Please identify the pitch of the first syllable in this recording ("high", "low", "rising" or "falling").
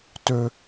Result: high